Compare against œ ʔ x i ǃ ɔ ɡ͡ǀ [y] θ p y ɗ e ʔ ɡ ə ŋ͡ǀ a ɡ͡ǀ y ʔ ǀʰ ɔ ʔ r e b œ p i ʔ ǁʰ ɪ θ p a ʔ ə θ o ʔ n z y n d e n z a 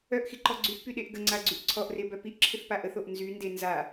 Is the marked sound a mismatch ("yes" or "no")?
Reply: no